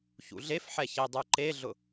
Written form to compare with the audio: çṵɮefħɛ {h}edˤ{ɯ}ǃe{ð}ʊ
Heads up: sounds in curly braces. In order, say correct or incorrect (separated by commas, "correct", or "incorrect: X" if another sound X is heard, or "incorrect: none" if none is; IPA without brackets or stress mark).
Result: incorrect: ç, incorrect: u, incorrect: ɮ